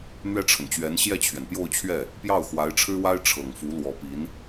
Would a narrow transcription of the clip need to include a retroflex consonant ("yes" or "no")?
yes